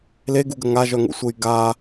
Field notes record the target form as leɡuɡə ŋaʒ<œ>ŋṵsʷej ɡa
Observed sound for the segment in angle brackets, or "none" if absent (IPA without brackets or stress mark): œ